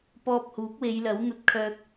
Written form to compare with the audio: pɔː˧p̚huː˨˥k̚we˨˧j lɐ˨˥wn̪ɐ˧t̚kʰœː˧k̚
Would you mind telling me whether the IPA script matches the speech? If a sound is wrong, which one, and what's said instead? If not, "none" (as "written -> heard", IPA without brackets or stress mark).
none